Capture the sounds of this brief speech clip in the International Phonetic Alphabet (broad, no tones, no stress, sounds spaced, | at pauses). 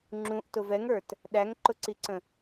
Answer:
ŋ͡ǁ ũ ʔ t ʊ v ɛ ŋ ə˞ t | ɗ æ ŋ ǃ ʊ ǀ i ǀ ə̃